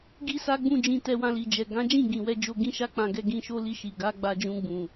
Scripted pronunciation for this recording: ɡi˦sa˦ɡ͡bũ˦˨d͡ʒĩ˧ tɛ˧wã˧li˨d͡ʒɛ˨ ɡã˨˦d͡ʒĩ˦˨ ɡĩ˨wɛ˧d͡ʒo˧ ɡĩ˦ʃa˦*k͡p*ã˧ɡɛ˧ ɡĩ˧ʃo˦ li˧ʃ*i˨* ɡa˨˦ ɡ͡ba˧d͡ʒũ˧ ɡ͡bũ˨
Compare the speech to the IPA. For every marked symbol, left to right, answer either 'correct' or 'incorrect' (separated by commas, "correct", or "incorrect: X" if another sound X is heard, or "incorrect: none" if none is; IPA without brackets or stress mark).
correct, correct